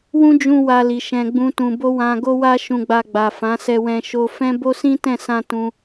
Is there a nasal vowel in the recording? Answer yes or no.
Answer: yes